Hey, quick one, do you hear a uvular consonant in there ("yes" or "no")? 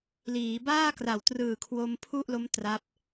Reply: no